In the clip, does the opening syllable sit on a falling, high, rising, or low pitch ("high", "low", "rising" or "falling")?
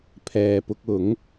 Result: low